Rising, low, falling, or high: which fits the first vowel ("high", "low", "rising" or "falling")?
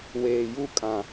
low